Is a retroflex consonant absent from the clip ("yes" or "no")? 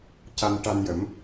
no